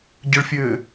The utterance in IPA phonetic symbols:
ɟəɭfʲɘː

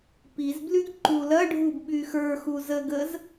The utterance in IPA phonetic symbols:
piz blyɡǃulɐɖʱub ɓyxə˞xu zəɡəz

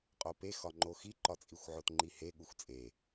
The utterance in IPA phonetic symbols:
qʼopexɒŋ͡ǃo xiǃɒt͡sʼixʷʕot ŋ͡ǃihe ɠuxʷt͡sʼe

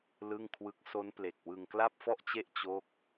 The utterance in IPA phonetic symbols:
lɯ˥˩ŋkʰwɯ˦˥k̚ so˦˥nple˨˩k̚ wɯ˧ŋkla˥˩p̚fɔ˥˩ʔt͡ɕe˥˩ʔ t͡ɕo˥˩k̚

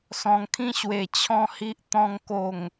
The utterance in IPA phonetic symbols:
sɔ̃˨˩ŋkʰĩ˧ɕwe˨˩ t͡ɕʰɔ̃˥˧hi˦ʔ t̪ɔ̃˧ŋ ko˨˩ŋ

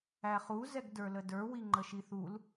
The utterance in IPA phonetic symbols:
æχu zɛɡdə˞lədə˞ wiŋ͡ǃəʃiθul

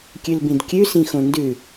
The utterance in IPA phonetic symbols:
kʲʉlbĩdkʲʉ sĩxõndʉ

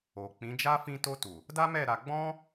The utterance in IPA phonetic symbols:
o˨k͡pĩ˨˦d͡ʒa˦ fĩ˧ to˧tu˨ | da˦mɛ˦˨ ɾa˧ ɡ͡bɔ̃˦

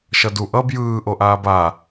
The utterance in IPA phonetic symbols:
ʃʌdu ʔʌb jɯː ʔoʔaːba

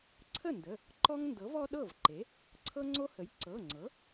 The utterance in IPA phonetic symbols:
ǀʰə˥˩ndə˩˧˩ | ǃɔ˦ŋndɤ˩˥vɔ˦ ɗɤ˥˩vǃe˩˥ | ǀʰɤ˦ŋ͡ǀo˦hə˩˥j ǀɤ˩˧˩ŋ͡ǀɤ˩˥

